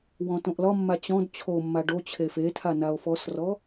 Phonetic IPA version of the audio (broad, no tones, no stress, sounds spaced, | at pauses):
w ɔ̃ t õ ʔ l ɒ mː a t͡ɕ ɔ̃ d t͡ɕʰ o mː a ɖ o t͡ɕʰ e f e tʰ a n a o̯ f ɔ s r ɔ